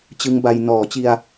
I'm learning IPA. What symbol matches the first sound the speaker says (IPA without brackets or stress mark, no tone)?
t͡ɕ